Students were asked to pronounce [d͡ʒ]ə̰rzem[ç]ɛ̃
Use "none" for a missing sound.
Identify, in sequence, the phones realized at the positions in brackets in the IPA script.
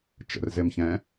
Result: t͡ʃ, ç

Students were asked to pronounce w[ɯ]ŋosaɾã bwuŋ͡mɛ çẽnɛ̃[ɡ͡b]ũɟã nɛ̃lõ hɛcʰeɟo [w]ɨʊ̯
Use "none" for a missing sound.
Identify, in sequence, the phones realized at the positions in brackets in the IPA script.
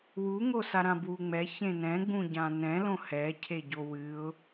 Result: u, ɡ͡b, w

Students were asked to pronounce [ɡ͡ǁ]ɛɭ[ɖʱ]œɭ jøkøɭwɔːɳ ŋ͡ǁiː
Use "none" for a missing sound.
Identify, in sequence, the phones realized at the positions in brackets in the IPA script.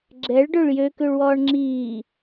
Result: ɡ͡ǁ, ɖ

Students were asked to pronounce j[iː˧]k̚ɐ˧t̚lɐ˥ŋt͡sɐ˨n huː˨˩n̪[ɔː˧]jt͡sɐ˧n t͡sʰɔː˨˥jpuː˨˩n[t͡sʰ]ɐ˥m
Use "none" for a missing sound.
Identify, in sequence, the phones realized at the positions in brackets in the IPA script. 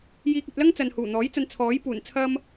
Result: iː˧, ɔː˨˥, t͡sʰ

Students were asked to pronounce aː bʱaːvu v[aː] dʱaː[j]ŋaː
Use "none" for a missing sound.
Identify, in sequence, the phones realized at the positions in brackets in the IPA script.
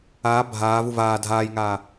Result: aː, j

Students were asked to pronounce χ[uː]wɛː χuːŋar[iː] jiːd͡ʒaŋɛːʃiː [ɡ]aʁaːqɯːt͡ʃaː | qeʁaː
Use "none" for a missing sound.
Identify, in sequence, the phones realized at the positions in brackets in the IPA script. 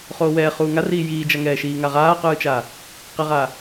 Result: oː, iː, ŋ

